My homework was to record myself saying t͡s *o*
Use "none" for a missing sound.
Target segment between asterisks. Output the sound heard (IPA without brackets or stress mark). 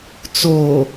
o